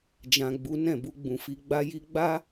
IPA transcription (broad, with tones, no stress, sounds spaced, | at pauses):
d͡ʒ ã˨ ɡ͡b u˨˦ n ɛ̃˦˨ b u˧ ɡ͡b ũ˨ f i˧ ɡ͡b a˧ j i˧ ɡ͡b a˦